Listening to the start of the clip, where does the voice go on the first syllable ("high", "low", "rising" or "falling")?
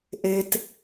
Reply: high